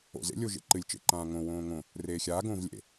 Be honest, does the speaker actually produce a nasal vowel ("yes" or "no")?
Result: yes